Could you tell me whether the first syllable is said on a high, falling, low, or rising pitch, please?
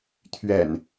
low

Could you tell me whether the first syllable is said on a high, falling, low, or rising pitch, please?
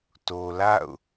low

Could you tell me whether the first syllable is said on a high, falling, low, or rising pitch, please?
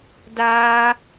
high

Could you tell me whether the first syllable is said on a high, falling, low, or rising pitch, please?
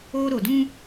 high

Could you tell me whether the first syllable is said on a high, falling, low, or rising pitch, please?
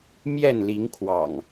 falling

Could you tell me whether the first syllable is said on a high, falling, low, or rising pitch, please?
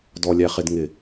low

